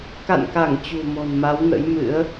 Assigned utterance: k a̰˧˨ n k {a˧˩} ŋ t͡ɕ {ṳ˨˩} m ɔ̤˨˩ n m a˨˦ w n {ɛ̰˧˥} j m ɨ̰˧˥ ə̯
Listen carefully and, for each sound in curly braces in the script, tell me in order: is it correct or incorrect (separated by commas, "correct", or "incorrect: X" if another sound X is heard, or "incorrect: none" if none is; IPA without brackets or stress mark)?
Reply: correct, correct, incorrect: ə̰˧˥